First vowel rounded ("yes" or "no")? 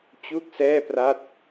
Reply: yes